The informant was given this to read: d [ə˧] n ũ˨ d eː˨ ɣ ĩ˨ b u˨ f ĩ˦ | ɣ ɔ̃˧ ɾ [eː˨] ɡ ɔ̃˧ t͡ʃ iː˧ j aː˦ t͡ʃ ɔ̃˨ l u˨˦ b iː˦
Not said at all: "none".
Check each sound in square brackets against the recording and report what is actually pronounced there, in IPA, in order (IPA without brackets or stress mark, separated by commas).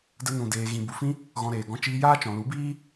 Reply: ə˧, eː˨